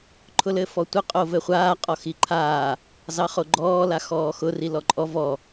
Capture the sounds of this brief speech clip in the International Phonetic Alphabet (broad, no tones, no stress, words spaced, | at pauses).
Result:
ǃʰʊlɘfɔtʷə qʼovɘχʷaː qʼɔxiǃʰaː | zɑχoɡ͡ǃɔː laxɔːxʊ rilɔǃʼɔ vɔ